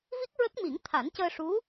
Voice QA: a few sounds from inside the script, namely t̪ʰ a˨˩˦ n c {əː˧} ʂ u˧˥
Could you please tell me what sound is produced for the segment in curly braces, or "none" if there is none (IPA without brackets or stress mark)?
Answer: əː˧